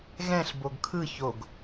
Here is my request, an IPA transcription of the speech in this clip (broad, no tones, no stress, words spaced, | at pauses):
ɣɛ̃ɬ boɡkʰɯ çoɡ